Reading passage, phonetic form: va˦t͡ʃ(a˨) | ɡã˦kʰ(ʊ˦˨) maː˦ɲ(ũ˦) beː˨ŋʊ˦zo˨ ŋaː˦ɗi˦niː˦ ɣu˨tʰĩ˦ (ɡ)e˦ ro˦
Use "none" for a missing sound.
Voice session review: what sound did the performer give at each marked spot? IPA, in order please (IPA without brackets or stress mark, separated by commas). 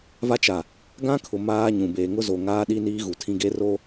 a˨, ʊ˨, ũ˨, ɡ